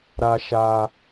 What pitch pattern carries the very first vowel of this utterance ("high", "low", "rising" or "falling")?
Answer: high